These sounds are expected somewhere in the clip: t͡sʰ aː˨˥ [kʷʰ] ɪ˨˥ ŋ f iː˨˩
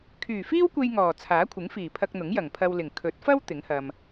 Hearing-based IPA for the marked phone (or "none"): kʷʰ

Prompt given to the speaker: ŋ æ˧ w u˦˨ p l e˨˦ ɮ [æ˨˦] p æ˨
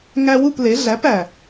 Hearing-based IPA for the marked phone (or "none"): æ˨˦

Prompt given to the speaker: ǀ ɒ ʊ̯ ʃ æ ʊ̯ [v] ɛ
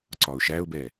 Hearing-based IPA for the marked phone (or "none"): b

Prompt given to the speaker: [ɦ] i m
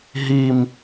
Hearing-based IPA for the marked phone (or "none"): ɦ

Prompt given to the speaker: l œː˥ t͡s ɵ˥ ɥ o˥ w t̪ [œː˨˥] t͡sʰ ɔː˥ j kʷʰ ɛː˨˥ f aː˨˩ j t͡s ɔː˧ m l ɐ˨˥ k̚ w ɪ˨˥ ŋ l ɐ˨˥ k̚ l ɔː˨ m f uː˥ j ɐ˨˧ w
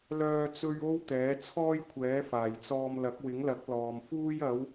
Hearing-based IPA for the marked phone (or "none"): ɛː˨˥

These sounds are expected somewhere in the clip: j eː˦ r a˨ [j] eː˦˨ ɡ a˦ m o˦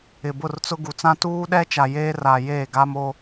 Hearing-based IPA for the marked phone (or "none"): j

